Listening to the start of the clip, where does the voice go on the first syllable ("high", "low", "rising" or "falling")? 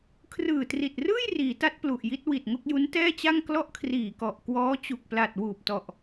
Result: low